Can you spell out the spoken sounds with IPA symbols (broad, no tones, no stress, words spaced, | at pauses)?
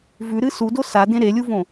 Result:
vʉɾɨ sudo sadẽ ɾelʲuvõ